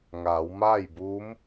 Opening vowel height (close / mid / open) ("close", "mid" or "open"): open